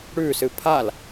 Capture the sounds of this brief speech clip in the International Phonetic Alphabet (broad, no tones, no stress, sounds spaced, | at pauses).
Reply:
ɽ ʉː s ɨ pʰ a l